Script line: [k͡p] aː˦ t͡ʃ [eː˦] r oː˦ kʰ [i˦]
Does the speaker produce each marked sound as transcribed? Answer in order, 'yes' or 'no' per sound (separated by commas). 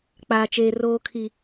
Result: yes, yes, yes